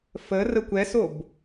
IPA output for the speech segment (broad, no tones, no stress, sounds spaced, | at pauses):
f ə r ə kʷ ɛ s o b